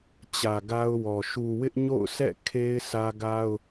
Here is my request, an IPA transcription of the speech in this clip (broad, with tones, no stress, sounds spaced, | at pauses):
t͡ɕ ä˨ ɡ a˦ ʊ̯ w ɔ˨ ʃ u˨ w ɪ˦ ʔ ɲ o̰˦˨ ʊ̯ sʰ ɛ̰˦˨ kʰ e˦ ɪ̯ sʰ ä˦ ɡ a˦ ʊ̯